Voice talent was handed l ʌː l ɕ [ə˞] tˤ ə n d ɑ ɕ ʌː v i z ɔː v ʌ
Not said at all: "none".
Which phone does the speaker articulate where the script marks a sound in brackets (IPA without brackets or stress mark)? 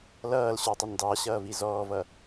ə˞